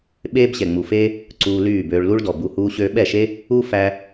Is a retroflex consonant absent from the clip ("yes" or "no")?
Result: no